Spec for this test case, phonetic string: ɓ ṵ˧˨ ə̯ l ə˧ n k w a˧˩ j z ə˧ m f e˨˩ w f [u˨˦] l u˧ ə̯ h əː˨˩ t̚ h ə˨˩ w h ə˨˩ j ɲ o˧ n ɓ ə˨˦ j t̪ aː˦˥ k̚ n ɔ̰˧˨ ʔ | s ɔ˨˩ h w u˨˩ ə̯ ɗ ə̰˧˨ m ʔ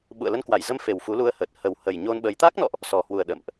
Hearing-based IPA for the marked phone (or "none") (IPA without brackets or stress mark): u˨˦